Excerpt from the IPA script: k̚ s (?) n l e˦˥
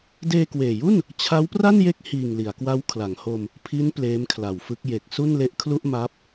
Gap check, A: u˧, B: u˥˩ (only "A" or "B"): B